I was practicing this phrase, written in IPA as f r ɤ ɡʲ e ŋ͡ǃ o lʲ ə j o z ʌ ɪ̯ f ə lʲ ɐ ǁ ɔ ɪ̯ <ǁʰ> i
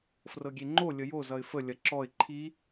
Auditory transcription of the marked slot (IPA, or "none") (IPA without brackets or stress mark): ǃʰ